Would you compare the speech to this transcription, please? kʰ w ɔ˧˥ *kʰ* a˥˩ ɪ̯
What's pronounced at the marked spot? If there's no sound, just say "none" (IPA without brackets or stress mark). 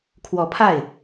pʰ